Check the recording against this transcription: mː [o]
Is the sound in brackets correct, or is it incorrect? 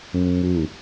incorrect